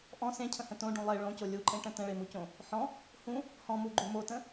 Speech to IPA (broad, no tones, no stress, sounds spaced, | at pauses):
ʔ ɔ̃ s ẽ cʰ ə̃ h ə̃ t õ ɖ ũ lˠ e ɭ õ c o lʲ u ǃʼ ẽ ʈ ə̃ t ə̃ ɭ e m u c õ | ħ ɔ̃ | h ũ | h ɔ̃ m u ɡ͡ǃ u m o t ə̃